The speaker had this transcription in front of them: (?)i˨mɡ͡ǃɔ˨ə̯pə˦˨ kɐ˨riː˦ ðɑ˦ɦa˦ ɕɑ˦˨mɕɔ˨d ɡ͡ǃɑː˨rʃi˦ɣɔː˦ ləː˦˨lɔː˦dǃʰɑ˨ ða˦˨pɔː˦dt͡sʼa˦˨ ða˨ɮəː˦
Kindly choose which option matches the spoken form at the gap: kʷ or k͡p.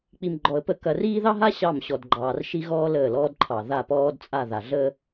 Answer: k͡p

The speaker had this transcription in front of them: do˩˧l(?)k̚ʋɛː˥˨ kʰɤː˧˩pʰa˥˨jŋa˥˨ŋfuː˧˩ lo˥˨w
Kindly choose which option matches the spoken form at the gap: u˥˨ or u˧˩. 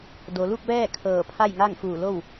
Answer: u˥˨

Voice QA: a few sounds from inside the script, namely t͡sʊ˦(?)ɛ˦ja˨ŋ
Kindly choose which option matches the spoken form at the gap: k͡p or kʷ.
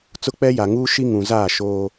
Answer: k͡p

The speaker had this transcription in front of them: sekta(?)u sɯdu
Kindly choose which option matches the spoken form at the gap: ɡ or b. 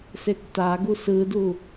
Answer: ɡ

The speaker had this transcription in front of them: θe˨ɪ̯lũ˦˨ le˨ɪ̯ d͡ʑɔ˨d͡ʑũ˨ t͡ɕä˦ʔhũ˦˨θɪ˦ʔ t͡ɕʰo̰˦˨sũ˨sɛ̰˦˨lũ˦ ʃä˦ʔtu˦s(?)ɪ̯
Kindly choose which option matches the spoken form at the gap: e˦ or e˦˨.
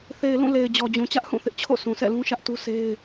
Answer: e˦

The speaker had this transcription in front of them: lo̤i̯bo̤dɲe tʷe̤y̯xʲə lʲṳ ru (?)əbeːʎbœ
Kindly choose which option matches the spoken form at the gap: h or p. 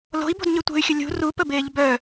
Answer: p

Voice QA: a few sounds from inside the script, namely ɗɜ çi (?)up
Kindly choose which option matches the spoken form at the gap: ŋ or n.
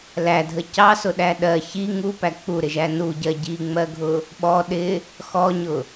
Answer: ŋ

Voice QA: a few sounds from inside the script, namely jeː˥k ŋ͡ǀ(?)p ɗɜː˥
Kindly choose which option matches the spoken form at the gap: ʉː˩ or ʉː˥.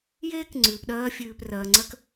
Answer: ʉː˩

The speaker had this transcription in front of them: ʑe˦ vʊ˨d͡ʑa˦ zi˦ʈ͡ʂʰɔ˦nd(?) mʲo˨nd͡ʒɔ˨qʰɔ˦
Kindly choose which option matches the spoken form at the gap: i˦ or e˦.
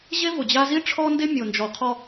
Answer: e˦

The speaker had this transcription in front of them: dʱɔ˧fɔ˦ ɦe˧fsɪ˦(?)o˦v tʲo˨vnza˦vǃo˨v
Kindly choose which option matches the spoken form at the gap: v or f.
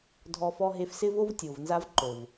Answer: v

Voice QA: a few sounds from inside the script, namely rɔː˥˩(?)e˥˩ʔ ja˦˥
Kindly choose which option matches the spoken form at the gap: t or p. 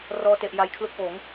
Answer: t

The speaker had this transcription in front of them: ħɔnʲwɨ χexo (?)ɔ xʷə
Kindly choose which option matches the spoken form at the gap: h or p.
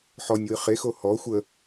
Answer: h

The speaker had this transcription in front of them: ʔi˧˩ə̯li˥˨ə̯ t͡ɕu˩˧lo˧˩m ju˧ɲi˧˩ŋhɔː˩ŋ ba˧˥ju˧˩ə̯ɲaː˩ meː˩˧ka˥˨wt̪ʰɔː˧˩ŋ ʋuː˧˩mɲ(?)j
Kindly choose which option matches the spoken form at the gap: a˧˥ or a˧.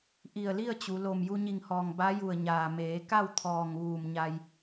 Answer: a˧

